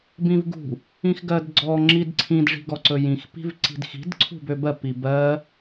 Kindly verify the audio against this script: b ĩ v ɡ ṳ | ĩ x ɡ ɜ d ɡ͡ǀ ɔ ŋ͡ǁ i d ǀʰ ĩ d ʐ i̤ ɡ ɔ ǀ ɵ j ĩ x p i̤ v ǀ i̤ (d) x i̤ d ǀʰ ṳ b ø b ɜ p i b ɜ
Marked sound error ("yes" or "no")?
no